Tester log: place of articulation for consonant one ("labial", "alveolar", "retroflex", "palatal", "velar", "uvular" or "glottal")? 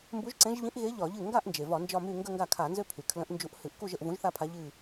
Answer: labial